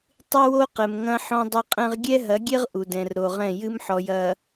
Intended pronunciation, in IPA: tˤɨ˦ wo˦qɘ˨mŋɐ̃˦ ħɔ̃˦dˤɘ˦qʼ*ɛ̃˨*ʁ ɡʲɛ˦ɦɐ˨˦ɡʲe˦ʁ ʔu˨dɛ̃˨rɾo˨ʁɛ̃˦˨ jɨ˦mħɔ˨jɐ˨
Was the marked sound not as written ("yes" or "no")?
yes